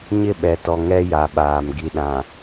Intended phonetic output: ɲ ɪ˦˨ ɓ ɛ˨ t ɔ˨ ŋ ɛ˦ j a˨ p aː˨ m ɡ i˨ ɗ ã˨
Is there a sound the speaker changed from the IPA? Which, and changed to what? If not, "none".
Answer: p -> ɓ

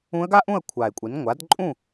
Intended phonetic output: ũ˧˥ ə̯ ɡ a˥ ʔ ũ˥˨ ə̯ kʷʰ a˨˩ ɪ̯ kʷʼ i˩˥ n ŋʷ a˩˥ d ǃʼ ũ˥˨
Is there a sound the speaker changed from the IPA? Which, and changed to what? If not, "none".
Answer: none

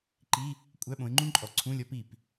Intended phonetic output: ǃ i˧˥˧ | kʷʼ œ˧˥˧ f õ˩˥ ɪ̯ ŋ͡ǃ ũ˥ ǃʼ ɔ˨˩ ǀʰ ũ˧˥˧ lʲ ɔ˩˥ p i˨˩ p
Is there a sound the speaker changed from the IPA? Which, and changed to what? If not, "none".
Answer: f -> ɓ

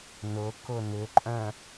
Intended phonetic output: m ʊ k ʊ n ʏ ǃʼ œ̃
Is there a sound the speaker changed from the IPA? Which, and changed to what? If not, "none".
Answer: m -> n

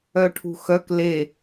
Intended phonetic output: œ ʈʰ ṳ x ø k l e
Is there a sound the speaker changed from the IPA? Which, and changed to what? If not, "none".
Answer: ø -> œ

